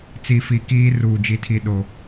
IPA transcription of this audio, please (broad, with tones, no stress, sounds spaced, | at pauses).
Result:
t͡s i˨ f i˨ k iː˦ r uː˨ d͡ʒ i˨ tʰ i˨ ɗ o˨